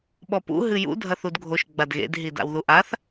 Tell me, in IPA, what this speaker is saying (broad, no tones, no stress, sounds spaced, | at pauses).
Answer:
ɓ ɔ p ṵ ɦ ɨ j ṵ dʱ ɐ θ u d ɡʱ o ʃ ɡ͡b a d ɣ ḛ d ɦ i d a̰ w ð u ʔ a θ